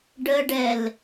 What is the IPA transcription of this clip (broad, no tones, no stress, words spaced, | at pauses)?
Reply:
ɖəɖɛl